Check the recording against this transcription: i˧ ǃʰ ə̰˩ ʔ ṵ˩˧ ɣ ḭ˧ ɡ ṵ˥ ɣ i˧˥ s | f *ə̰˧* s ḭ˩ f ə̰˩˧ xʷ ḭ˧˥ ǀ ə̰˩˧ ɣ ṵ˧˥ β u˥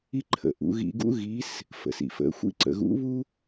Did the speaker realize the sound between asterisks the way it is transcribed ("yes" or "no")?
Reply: no